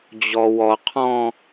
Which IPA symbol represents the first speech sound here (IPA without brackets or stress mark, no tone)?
d͡ʑ